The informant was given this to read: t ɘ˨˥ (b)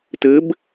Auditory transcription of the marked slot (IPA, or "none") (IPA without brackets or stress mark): b